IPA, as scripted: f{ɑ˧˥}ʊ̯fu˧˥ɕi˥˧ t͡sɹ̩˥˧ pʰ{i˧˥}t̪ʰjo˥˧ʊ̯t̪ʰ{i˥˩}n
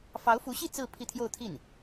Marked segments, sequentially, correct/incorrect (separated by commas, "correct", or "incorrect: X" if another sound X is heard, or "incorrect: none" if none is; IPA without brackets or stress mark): correct, incorrect: i˥˧, correct